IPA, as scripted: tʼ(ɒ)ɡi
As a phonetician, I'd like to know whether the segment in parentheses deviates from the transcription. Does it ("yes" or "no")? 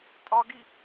no